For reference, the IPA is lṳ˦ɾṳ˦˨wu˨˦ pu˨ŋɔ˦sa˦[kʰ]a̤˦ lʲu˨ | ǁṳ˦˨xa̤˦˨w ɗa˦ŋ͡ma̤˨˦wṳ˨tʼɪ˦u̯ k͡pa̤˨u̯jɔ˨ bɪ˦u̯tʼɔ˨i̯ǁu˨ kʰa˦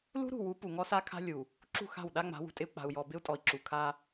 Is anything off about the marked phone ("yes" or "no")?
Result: no